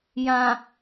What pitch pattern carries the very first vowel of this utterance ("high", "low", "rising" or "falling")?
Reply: low